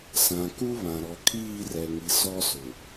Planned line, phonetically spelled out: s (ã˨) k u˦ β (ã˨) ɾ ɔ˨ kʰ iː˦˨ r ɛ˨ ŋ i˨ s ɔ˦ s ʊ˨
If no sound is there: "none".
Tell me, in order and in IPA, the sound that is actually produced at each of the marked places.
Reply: ã˨, ã˨

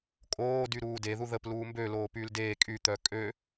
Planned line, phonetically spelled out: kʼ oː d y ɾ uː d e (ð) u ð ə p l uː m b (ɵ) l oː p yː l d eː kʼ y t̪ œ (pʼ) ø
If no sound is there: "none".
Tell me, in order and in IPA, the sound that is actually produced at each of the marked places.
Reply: ð, ø, kʼ

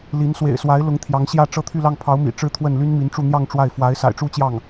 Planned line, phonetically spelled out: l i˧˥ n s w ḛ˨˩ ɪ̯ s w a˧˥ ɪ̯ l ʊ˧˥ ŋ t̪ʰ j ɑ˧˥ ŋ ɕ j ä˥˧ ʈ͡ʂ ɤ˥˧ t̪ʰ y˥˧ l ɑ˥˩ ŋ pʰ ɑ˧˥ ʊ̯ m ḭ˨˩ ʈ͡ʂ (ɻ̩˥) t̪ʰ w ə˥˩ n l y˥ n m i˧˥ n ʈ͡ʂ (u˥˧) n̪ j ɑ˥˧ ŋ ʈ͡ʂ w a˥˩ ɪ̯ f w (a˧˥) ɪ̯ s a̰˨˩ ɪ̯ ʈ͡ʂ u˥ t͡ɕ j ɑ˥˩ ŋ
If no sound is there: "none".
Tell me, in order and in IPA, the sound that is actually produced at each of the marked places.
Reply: ɻ̩˥˧, u˥˧, a˧˥

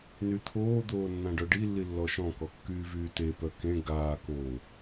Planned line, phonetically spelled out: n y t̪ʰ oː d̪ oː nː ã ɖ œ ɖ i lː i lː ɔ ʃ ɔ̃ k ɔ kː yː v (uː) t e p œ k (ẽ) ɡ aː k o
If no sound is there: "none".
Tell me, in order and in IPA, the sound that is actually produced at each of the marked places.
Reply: yː, ẽ

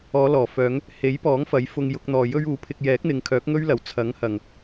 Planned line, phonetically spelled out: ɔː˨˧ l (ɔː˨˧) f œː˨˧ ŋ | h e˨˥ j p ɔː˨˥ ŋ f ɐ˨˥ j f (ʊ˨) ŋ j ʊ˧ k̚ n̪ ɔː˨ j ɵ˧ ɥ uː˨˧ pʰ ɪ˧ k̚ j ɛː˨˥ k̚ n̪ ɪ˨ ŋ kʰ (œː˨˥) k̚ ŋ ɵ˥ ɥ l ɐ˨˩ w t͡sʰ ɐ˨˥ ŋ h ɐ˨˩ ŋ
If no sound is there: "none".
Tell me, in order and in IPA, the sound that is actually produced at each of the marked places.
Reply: ɔː˨˩, ʊ˧, œː˨˥

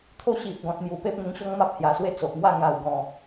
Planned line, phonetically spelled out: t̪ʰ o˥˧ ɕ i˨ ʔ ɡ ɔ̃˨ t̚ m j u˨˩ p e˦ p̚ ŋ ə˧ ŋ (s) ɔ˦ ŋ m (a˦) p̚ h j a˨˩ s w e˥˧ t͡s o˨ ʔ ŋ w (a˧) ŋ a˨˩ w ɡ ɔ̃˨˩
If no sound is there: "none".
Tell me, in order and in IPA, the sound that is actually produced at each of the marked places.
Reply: ɕ, a˦, a˥˧

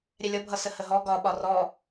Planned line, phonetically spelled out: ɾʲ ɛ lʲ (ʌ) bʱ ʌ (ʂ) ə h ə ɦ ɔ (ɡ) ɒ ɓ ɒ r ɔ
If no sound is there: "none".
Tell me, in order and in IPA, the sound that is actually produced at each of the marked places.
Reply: ʌ, s, ɡ

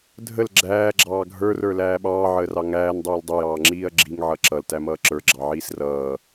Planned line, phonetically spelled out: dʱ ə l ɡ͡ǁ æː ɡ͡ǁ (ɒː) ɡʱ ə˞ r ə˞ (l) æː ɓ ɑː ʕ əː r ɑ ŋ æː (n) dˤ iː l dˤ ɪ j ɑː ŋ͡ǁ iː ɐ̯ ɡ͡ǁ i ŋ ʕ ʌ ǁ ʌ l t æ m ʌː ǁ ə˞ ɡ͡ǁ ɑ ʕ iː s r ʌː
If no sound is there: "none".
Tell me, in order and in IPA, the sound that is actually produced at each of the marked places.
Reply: ɑː, l, n

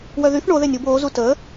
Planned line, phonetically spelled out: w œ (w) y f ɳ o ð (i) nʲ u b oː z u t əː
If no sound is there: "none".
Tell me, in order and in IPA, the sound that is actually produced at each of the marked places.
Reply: ð, e

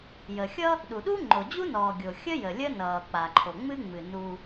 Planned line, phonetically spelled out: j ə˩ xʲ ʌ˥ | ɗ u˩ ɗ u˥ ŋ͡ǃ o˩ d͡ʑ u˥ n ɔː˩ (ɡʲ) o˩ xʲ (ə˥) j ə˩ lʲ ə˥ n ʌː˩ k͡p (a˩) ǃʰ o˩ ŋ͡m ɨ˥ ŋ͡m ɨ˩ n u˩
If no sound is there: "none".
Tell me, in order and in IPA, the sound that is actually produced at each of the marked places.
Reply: ɡʲ, ə˥, a˩

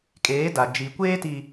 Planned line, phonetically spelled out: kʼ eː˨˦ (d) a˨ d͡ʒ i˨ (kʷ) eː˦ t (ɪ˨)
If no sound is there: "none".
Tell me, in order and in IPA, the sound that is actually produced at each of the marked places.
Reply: d, kʷ, i˨

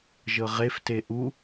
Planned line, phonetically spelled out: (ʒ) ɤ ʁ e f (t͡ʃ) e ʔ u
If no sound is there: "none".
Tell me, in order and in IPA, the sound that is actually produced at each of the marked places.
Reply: ʒ, t

